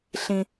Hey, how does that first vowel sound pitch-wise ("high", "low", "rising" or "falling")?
high